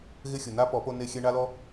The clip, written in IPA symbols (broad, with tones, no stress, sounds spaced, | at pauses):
ɣ ɪ˦ xʲ ʊ˨ n a˦ p ɔ˨˦ p o˧ n e˧ xʲ ɛ˧ ɳ a˦ l ɔ˦